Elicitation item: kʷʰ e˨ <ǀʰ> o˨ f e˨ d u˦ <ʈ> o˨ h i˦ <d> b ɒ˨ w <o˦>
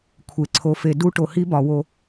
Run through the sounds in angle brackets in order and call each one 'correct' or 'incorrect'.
correct, correct, incorrect, correct

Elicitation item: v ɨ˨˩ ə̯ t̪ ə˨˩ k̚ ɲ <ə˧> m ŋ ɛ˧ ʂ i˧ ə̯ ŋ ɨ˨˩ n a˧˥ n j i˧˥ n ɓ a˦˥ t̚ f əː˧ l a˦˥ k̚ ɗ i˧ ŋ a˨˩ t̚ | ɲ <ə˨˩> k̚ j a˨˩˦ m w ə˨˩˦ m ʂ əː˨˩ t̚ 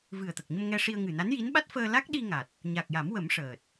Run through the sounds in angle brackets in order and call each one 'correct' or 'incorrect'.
correct, incorrect

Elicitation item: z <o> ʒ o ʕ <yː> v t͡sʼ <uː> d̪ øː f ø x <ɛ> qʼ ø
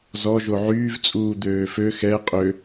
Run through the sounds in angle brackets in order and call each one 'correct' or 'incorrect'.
incorrect, correct, correct, correct

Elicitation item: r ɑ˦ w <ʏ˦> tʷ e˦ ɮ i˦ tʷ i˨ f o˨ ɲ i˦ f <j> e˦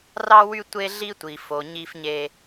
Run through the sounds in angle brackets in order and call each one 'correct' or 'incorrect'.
incorrect, incorrect

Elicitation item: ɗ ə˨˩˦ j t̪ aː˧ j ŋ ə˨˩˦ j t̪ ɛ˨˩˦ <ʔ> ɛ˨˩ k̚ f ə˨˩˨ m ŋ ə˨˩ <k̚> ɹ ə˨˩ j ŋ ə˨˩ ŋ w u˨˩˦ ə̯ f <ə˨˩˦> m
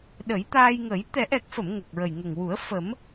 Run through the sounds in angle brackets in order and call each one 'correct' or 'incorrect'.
correct, correct, correct

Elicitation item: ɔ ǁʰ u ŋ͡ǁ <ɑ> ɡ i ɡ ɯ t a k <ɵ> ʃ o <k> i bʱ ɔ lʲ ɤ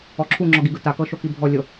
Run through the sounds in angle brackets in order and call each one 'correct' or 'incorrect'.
incorrect, incorrect, correct

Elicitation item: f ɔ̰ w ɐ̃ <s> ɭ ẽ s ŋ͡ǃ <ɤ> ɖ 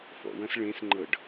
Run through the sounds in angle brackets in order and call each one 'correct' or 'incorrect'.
correct, correct

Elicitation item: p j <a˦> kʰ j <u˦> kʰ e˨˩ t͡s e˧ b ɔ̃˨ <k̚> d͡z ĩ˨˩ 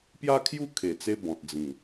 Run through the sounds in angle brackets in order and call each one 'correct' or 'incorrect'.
correct, correct, incorrect

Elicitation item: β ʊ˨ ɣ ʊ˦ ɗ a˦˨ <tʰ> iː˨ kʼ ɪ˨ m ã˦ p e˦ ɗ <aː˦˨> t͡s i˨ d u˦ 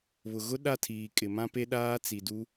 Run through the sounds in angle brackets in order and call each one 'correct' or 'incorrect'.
correct, incorrect

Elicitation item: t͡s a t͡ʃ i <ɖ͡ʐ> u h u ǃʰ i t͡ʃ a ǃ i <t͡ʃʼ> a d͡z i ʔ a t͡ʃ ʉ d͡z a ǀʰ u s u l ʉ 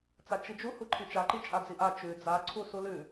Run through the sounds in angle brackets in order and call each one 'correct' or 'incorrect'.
incorrect, correct

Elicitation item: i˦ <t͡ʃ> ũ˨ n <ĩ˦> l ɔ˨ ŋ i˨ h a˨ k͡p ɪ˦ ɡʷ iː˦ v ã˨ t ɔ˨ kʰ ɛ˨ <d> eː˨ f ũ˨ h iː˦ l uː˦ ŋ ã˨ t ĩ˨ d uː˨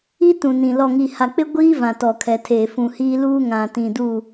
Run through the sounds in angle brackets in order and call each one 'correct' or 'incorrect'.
incorrect, incorrect, incorrect

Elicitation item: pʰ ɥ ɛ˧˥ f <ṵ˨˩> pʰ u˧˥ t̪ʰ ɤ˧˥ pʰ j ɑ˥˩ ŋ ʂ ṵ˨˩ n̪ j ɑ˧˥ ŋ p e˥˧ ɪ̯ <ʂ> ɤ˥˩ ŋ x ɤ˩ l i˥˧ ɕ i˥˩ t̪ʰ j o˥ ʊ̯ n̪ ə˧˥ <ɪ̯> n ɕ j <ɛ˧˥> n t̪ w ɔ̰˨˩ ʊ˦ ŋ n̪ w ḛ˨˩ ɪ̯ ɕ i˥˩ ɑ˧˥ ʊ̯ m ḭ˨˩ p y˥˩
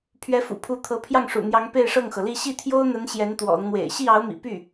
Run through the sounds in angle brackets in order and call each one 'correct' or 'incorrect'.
correct, correct, incorrect, correct

